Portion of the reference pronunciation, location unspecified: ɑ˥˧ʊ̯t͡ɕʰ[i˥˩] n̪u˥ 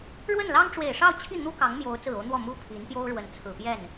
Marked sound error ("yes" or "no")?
no